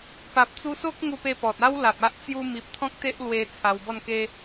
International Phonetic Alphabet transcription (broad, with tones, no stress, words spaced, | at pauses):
pa˨p̚t͡su˧so˦k̚ ŋu˧pe˧pɔ˨t̚ a˦w la˨p̚a˦ʔ t͡sju˧mi˨p̚ t̪ʰɔ̃˦k̚t̪e˦ʔlwe˧ t͡sʰa˧wbɔ˥˧n ke˦